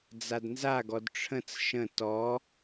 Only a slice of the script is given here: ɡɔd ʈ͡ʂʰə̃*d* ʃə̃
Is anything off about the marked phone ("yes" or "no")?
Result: yes